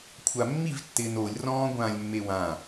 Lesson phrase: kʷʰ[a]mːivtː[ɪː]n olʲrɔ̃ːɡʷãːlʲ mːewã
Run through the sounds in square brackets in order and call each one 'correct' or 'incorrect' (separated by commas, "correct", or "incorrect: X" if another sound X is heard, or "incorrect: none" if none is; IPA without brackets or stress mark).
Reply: correct, correct